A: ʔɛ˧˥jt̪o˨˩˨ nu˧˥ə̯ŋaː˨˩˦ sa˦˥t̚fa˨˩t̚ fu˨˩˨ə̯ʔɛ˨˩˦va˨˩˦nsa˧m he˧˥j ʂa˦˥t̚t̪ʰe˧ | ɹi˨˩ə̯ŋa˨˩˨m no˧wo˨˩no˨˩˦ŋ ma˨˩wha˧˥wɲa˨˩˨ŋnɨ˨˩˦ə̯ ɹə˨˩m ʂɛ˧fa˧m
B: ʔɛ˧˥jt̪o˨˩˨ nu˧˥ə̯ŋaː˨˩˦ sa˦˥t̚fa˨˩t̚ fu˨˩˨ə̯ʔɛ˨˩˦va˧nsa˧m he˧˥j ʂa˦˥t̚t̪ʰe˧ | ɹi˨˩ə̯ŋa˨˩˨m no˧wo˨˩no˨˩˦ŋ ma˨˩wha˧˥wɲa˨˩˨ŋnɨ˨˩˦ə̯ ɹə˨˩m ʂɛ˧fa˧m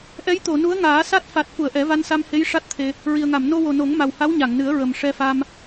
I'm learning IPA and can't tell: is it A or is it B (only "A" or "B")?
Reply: B